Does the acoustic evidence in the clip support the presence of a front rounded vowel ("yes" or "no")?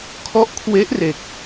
no